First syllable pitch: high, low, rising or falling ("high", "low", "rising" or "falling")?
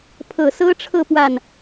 low